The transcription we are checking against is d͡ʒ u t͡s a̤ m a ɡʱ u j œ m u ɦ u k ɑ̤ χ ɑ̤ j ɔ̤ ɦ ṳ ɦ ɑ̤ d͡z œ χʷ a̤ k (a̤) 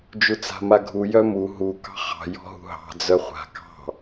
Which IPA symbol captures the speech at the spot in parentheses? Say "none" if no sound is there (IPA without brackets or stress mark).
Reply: ɑ̤